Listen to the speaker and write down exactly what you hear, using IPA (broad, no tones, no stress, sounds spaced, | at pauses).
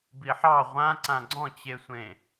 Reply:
b i ħ ɑ ʁʷ ã ǀ ã ɡ͡ǀ ɔ̃ t͡ɕ e sʷ ẽ